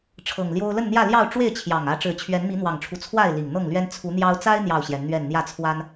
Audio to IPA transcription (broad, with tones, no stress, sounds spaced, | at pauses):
ʈ͡ʂʰ ɤ˨˩ ŋ l j o˦ ʊ̯ l ə˥˨ n n̪ j ä˥˨ l j ɑ˥˨ ʊ̯ ʈ͡ʂ w e˥˨ ɪ̯ t͡ɕʰ j ɑ˨˩ ŋ ä˨˦ ʈ͡ʂ ɻ̩˨˩ t͡ɕʰ ɥ ɛ˨˦ n m i˨˦ n̪ w ɑ˨˩ ŋ ʈ͡ʂʰ u˦ t͡sʰ w a˥˨ ɪ̯ l i˨˩ ŋ n̪ ɤ˥˨ ŋ l ɥ ɛ˦ n t͡sʰ u˨˦ n̪ j ɑ˦ ʊ̯ t͡s a˦ ɪ̯ n̪ j ɑ˥˨ ʊ̯ ɕ j ɛ˨˦ n n̪ ɥ ɛ˥˨ n n̪ j ä˥˨ t͡sʰ w a˦ n